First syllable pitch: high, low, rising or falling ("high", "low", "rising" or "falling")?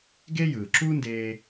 high